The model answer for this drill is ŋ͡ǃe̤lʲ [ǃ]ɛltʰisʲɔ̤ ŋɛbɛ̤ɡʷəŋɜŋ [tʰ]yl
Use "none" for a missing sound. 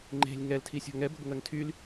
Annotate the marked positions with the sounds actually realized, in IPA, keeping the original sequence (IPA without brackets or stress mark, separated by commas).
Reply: ŋ, tʰ